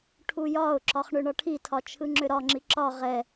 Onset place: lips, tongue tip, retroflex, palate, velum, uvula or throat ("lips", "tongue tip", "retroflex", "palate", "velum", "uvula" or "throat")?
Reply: retroflex